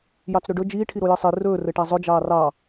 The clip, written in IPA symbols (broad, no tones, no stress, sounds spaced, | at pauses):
j ɑ t͡s ɾ ɵ ɖ ɵ d͡ʒ iː ʈʰ i ɾ o j ɘ sˤ i r ɵː r ɘ ʈ a zˤ ɵ d͡ʒ ɑː r ɑ